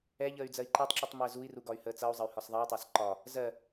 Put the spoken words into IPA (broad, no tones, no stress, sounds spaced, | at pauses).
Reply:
ɛ ʎ əː y̯ d͡z ɜ i̯ ǃ ɛ tˤ ǁ i tˤ m əː z u i̯ r u ɡ ɒ y̯ h əː t͡s ʌ u̯ zˤ ə y̯ h ɒ s ðˤ ɛ y̯ tˤ ɑ s ǃ ɒ | z ɜ